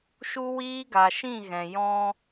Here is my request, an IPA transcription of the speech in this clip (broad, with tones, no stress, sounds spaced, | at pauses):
ʃ u˦ w iː˦ ɡ a˨ ʃ ĩ˦˨ ɣ ɛ̃˨ j ɔ̃˧